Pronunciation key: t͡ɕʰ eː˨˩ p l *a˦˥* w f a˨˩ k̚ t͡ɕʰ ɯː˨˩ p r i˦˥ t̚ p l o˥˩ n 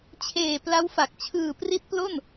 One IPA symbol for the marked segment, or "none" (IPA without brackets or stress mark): a˦˥